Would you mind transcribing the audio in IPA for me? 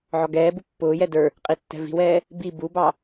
ʕ ɔ ɡ ɛː b u pː ʊː j ɛ d ə˞ | qʼ i tː ɛ̤ v i̤ w ɛː | b i b u b ɑ

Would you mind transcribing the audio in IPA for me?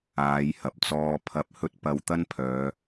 aː˨˧ j h ɐ˨ p̚ t͡s ɔː˧ pʰ ɐ˧ p̚ h ɵ˥ t̚ p ɐ˧ w t̪ ɐ˥ n pʰ œː˨˧

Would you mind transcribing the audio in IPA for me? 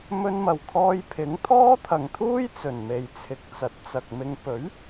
m ɵ˧ n m ɐ˨˩ w kʰ ɔː˧ j pʰ ɪ˨˥ ŋ t̪ʰ ɔː˥ t̪ʰ ɐ˨ ŋ t̪ʰ uː˥ j t͡s ɵ˨˩ n m e˨ j t͡sʰ ɪ˨ k̚ t͡s ɐ˨˥ t̚ t͡s ɐ˨ k̚ m ɪ˧ ŋ p ɵ˨˥ ɥ

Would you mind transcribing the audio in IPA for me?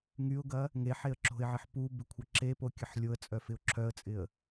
ŋ y ʊ̯ ɡ ɐ | ŋ e ħ e ə̯ ǁ o̤ ɪ̯ ʕ ɪ ħ p u b ɪ kʷʰ ɐ ǁ e p o kʲ ɐ ħ lʲ o ə̯ t͡sʼ œ f ɪ ʊ̯ ǁʰ œ ə̯ t͡sʼ ɪ ə̯

